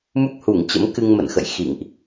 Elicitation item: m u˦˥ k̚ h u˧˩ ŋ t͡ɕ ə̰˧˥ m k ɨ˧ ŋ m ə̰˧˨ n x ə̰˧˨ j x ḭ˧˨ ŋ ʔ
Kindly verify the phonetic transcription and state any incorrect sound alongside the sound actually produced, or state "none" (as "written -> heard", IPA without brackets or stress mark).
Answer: none